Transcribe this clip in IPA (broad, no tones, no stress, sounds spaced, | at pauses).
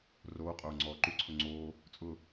r oː qʼ oː ŋ͡ǀ ɔː ǃ u ǀʰ ʊ ŋ͡ǀ oː | t͡sʼ ʊ